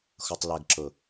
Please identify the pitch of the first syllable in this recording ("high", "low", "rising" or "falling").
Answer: low